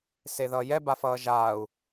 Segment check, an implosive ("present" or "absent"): absent